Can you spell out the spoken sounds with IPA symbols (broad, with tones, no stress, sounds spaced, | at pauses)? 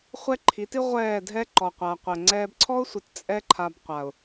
χʷ ɛ˦ ǃʰ i˨˦ t i˦ ʁʷ ɛː˦˨ dʱ ɛ˦ ǃ ɔ˨ qʷ a˨ qʷ ɛ˨ ŋ͡ǀ ɛː˧ b ǀʰ ɔ˦ ʊ̯ sʷ i˨ t t͡sʼ ɛ˦ ǃʰ a˧ b qʷ a˨ ʊ̯